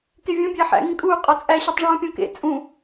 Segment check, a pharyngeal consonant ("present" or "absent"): present